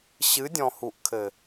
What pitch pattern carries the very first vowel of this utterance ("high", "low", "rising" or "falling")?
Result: rising